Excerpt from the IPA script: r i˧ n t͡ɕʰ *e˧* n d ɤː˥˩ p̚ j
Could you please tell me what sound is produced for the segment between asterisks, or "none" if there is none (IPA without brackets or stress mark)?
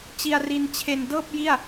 e˧